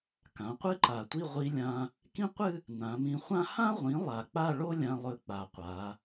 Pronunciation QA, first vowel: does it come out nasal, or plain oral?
nasal